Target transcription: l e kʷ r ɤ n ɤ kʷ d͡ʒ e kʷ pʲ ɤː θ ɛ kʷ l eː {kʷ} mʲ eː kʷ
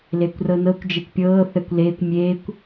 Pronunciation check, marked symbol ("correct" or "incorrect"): correct